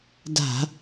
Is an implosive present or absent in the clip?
absent